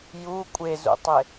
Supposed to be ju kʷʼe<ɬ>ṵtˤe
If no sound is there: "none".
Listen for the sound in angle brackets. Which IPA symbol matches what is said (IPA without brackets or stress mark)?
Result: z